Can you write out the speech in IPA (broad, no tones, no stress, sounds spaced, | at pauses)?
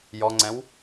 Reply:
j ɔ ŋ͡ǀ ɛ̃ w